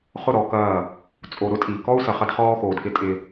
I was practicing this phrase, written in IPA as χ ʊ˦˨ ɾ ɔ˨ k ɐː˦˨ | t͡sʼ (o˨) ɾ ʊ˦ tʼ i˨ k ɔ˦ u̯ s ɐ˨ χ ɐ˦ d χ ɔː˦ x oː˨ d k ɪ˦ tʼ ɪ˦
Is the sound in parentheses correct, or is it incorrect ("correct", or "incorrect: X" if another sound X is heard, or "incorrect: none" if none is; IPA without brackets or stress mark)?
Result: correct